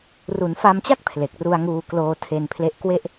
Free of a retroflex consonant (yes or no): yes